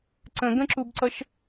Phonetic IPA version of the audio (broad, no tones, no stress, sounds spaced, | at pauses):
ǀ ə̃ ɡ ə̃ ǁ u b ǀ ʌ ʃ